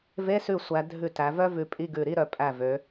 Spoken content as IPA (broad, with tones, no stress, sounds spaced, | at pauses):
v e˧˥˧ s ʉ˧˩ sʷ æ˩˧ dʱ ʉ˧˩ t æ˩˧ v œ˥ v ʉ˧˩ pʼ i˧˥˧ ɡ ʉ˧˩ ɾ i˧˥˧ ɾ œ˧˩ pʼ æ˧˩ v ø˩˧